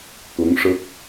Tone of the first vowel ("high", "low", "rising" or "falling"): rising